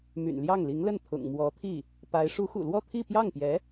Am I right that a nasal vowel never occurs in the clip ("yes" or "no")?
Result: yes